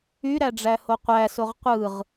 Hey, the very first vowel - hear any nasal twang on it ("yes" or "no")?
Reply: no